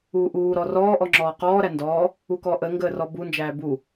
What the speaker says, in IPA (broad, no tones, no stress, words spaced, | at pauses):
uːʔuː ɾɔrɔː ʔɔŋ͡ǁɔːqɔː ɾændɔː | ukɔʔə ŋɡəːrɔbu nd͡ʒæːbu